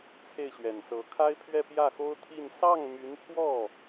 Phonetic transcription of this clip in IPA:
t͡sʰ e˥˩ ɪ̯ ɕ ɥ ɛ˨˩ n s ɤ˧˥ kʰ a˥ ɪ̯ pʰ ɥ ɛ˥˧ p j ä˥˩ x o˥ ʊ̯ t̪ʰ i˥˧ n s ɑ˥˩ ŋ m y˧˥ n pʰ w ɔ˥˩

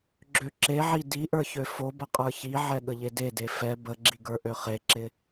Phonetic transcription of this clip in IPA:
ɡ͡ǁ ø ǁ e ʕ i d i ʔ ə˞ ç ø f o b ə qʼ ə˞ ç i ʕ ɛ ɠ ə ʎ e d e d e f ɛ b ə ɡ͡ǁ i ɡ ə˞ ʔ ø χ e ǁ ɪ

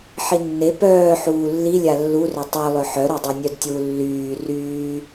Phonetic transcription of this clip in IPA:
ħ i nː e p œː ħ uː lː i lʲ a lː u r œ tˤ œ lˠ œ ħ œ ɾ œ dˤ e nʲ œ d tʲ u lː yː r yː

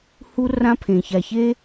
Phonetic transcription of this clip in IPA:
h u˦ r ã˦ pʰ ẽ˨ ç a˨ ç e˦

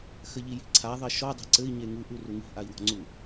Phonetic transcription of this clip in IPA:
x ɘ ʎ i j i̤ ǀʰ a ðˤ i ʃ ɔ dˤ ɛ̤ ǀ ɘ i̯ ɲ e ŋ u ʔ u r u ŋ i̤ ʔ a i̯ w ɔ̤ ŋ͡ǀ u

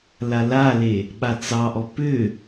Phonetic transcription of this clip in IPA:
l a l a l e | ɓ a t͡s ɑ ʔ ɔ p ʏ

